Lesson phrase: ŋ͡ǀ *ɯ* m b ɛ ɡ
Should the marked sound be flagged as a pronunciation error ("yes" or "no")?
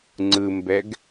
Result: no